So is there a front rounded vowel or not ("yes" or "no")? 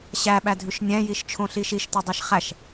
no